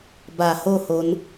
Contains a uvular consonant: no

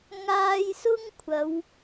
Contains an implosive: no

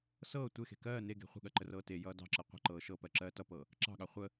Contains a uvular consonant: yes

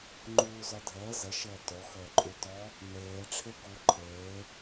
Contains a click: yes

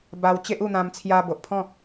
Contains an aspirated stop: yes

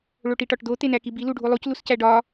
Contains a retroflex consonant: yes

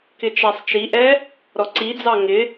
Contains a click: yes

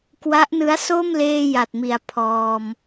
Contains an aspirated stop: yes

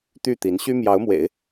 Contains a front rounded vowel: yes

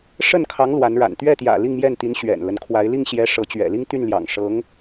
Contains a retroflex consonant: yes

